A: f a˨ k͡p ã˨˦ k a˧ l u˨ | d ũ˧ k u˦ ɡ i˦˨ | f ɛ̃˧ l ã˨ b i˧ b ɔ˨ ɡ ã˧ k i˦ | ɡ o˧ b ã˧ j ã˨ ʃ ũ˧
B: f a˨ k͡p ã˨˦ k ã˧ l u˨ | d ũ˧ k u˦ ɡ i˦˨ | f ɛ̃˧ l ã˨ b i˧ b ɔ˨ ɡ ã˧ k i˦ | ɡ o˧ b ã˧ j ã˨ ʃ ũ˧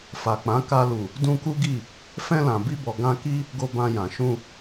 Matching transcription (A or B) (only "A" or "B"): A